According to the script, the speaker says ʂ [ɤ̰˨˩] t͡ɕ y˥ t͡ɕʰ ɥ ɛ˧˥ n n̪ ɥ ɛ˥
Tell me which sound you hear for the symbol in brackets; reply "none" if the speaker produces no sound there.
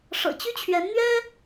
ɤ̰˨˩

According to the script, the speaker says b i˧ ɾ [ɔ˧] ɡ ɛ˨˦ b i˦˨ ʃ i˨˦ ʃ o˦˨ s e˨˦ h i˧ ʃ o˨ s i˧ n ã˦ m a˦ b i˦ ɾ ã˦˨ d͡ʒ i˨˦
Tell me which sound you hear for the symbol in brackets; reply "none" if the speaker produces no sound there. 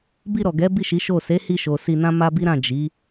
ɔ˨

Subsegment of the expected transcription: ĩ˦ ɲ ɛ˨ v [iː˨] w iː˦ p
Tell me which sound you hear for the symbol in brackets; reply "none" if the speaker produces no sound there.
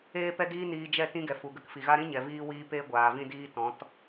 iː˦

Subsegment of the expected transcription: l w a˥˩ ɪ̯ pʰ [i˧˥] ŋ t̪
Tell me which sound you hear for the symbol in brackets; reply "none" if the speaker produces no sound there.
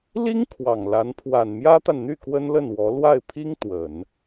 i˥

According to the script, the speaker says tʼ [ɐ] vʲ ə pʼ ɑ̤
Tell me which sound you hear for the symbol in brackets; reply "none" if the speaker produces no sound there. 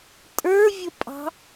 ə˞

